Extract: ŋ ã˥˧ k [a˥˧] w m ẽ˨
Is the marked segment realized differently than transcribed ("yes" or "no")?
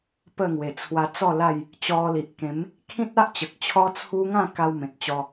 yes